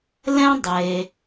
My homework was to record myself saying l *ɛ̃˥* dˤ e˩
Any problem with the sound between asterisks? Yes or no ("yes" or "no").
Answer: no